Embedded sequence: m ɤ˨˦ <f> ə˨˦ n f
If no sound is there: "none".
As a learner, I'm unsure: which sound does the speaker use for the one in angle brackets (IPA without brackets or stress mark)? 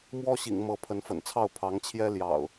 pʰ